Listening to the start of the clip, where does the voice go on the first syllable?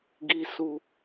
low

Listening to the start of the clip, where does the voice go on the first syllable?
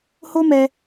high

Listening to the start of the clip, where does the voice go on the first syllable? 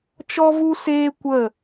high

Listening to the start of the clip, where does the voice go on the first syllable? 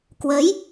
rising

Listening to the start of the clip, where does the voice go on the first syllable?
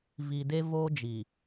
low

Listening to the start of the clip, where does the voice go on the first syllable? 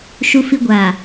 low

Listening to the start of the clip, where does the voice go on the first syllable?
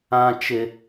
high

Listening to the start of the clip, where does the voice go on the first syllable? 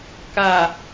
low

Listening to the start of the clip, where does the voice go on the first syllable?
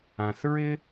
low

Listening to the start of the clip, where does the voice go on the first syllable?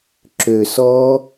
low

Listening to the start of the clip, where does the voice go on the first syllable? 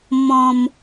low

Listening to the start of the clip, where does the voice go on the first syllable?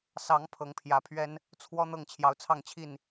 rising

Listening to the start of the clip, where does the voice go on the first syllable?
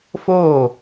falling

